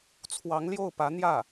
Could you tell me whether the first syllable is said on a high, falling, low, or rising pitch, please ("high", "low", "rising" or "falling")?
rising